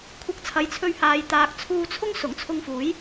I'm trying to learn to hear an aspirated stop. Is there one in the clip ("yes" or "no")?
yes